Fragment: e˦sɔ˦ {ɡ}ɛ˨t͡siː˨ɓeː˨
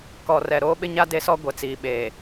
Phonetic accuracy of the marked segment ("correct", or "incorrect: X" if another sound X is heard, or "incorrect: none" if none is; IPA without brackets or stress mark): incorrect: ɡʷ